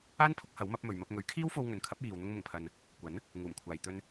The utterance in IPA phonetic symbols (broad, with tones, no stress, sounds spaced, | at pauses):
aː˥ n pʰ ʊ˨˥ k̚ h ɐ˨˥ w m ɐ˨˥ p̚ m ɵ˨ ɥ m ɐ˧ p̚ ŋ ɵ˨˥ ɥ kʰ iː˥ w f o˧ w ŋ ɵ˨ n kʰ ɐ˨˥ p̚ j iː˨ w n̪ ʊ˧ ŋ m ʊ˨˩ ŋ pʰ ɐ˨ n | kʷ ɐ˨˥ n | ŋ uː˨˩ m kʷʰ aː˨ j t̪ ɵ˧ n